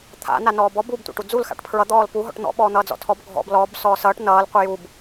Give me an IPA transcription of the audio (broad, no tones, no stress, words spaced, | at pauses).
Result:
t̪ʰa̰ nanɔːbɔ bub tʷa̰ʈud͡zul xa̰ʈpʰɹʌ d̪ɔːlpu ɦɔ̰ʈn̪ɔ̰ ɓɔːn̪ʌːd͡zɔ̰tʰɔb ɡʱɔ̰b lɔb sɔːsʌːʈ nʌːl qʷʌjub